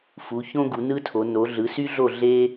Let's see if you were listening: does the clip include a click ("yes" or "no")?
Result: no